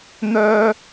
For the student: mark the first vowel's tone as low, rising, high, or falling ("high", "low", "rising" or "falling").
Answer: high